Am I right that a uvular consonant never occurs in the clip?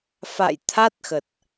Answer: yes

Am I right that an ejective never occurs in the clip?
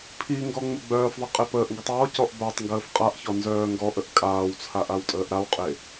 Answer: no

